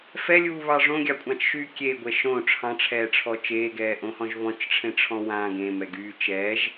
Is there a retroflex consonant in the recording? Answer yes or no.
yes